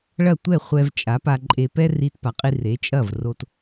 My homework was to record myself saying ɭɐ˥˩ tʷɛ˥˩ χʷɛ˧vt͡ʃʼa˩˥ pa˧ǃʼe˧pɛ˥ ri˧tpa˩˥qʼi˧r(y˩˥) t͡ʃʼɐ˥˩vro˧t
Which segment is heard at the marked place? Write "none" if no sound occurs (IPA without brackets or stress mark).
e˩˥